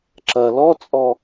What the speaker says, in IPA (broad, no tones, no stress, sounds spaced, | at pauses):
ǁ ɐ l ɔ t͡sʼ ɔ